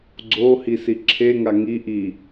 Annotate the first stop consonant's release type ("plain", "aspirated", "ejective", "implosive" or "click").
click